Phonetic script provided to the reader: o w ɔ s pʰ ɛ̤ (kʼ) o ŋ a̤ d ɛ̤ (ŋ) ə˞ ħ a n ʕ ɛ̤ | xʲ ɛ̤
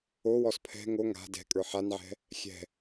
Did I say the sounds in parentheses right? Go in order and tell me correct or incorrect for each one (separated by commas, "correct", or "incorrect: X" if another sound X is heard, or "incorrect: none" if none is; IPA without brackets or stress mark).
incorrect: ŋ, incorrect: kʼ